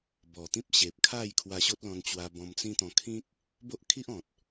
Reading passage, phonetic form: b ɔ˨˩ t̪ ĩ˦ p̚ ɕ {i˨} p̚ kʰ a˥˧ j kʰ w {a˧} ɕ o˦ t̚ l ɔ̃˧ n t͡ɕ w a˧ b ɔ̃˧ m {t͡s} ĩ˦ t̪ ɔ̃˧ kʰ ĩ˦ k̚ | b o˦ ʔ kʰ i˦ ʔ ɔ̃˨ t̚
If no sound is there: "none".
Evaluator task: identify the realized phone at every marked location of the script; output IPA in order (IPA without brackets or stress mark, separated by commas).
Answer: e˨, a˧, t͡s